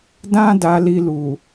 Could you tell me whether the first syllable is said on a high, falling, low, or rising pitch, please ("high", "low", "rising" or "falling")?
high